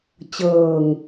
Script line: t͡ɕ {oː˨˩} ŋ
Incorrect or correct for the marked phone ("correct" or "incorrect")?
incorrect